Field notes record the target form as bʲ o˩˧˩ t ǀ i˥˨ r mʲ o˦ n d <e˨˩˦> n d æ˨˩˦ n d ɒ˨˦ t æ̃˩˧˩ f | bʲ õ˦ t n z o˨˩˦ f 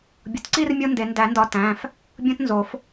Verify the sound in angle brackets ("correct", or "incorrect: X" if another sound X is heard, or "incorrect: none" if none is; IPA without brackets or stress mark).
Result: correct